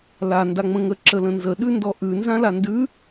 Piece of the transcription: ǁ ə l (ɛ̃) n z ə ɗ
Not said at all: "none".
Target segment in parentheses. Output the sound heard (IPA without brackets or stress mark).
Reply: ə̃